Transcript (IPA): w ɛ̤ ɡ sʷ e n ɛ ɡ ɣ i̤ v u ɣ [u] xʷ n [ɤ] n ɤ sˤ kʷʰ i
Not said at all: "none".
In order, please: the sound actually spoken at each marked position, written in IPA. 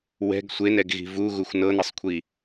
u, ɤ

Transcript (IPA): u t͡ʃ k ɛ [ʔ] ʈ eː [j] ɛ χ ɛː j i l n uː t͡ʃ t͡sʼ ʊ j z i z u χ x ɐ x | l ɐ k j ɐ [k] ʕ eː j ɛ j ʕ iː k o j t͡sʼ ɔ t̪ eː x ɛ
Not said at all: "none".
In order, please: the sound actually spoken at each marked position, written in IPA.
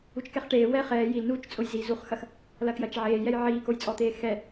χ, w, t͡ʃ

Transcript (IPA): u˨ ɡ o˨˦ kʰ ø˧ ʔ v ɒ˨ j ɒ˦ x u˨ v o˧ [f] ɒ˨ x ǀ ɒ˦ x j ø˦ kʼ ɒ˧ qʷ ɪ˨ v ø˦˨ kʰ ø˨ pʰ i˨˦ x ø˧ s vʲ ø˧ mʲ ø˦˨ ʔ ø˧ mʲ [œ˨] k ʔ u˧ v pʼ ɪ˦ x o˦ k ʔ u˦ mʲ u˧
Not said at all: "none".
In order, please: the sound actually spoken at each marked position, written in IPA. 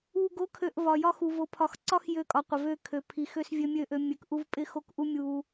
pʰ, ø˨

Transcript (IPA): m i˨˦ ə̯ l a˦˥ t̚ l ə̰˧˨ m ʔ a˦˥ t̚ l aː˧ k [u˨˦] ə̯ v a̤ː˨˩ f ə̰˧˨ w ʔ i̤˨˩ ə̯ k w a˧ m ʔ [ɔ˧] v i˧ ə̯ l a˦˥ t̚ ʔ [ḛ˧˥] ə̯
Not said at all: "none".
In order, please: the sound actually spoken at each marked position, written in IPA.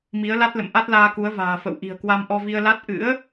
u˨˦, ɔ˧, ɨ̰˧˥

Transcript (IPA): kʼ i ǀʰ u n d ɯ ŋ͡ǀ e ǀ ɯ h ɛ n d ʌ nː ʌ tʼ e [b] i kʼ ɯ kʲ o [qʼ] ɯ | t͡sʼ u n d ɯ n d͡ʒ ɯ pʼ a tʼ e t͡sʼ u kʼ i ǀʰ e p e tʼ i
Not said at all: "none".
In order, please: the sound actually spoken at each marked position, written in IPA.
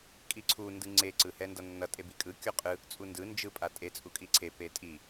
b, qʼ

